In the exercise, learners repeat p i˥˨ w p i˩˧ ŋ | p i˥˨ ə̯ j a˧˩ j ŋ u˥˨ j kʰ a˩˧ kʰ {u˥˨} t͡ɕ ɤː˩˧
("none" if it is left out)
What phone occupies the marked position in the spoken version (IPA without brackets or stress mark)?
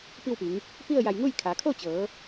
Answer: o˥˨